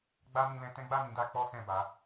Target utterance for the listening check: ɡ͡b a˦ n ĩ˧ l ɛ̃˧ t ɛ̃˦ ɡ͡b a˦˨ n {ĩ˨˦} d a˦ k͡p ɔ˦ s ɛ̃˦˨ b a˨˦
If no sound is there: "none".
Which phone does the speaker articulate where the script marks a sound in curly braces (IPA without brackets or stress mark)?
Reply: ĩ˨˦